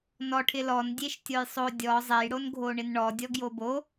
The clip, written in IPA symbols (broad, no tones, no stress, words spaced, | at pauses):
nɔʈʰɪ lɔndʲeʃ tʲojsˤo dʲɔ zˤejɽon ɡʱoɳɪnɳɔdʲɔ ɡjobo